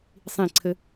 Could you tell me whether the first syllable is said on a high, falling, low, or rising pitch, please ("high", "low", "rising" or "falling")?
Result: falling